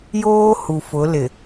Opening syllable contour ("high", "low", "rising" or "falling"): high